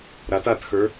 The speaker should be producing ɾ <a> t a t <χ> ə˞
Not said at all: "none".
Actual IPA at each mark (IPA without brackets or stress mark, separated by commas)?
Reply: a, x